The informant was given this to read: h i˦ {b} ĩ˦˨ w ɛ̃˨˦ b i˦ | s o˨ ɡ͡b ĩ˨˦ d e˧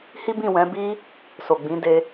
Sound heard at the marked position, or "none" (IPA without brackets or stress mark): b